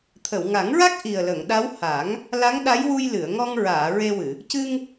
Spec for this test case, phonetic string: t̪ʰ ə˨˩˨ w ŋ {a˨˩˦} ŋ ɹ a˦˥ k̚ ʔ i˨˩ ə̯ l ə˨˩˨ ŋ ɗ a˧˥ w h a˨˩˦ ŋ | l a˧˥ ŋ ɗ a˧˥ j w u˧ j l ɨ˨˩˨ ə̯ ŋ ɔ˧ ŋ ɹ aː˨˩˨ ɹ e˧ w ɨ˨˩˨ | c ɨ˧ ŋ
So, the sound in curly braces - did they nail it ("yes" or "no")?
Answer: yes